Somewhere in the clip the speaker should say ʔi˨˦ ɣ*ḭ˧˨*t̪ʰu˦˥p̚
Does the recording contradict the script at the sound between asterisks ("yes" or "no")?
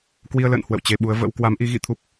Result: no